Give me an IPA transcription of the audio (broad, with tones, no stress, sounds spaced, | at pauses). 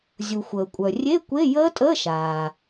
zʲ u˩ xʷ əː˩ kʷʼ œ˩ rʲ e˧˥˧ kʷ e˧˥˧ j əː˦˥ tʼ əː˧˥˧ ʃ aː˩